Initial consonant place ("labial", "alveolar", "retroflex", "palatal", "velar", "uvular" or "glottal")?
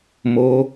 labial